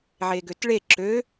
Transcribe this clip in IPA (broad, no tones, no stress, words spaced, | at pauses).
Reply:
ʕeɡøtɭe ǁø